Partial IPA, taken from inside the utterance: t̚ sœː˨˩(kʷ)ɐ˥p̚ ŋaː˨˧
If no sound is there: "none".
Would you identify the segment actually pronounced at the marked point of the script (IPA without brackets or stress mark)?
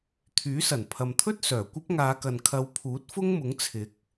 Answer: kʷ